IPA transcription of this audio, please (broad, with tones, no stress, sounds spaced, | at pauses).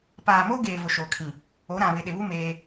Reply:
p aː˨ m oː˦ ɡ eː˨ v ʊ˨ ʃ oː˨ kʰ ĩ˨ | o˨˦ ɾ ã˨ β ɪ˨ ɗ ɪ˨ β u˦ m eː˦